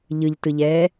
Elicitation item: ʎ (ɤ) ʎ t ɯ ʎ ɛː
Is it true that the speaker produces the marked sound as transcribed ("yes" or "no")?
no